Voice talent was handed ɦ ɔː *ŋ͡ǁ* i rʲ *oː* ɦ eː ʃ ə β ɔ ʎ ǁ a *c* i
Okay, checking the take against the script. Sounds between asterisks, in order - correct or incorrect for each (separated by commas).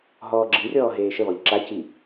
incorrect, incorrect, correct